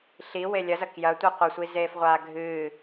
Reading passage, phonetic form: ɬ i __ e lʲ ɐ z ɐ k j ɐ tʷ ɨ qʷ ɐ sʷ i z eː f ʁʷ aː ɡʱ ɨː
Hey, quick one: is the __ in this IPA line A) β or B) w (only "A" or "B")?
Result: B